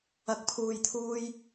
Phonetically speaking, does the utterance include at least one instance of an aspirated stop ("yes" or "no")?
yes